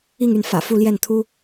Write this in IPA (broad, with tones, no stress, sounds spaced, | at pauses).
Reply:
i˥˧ ŋ y˥˩ n f ä̰˨˩ f u˥˧ l j ɛ˥˩ n t̪ʰ u˥